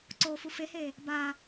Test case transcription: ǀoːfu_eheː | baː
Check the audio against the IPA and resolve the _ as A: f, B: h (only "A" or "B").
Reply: A